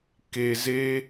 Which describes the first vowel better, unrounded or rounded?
unrounded